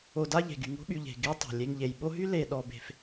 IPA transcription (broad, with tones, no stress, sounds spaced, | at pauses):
o˨ d a˦ ʎ e̤˩ ɡ y˩ ŋ o̤˥ ɓ y˨ ʎ e̤˩ ɡ e˦ tˤ o̤˩ lʲ e˨ ŋ ʎ e˩ j ɓ o˦ ɦ y˥ l e˨ ɗ ɔ˨ b e̤˨ f